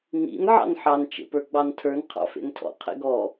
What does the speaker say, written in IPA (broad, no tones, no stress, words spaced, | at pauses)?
nḭn ʕɑ̰nħɑn t͡ʃḛpə˞ɡ͡bɑntʰə˞n qʰɑ̰fḛntʰɔ̰ qʰḛɡɔ